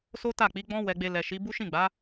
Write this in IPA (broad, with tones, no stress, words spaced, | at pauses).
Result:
so˦ta˦˨k͡pi˨˦ɡ͡bɔ̃˦ wɛ˧ɡ͡be˧ lɛ˨ʃi˨˦ bu˦ʃĩ˦˨ɡ͡ba˨˦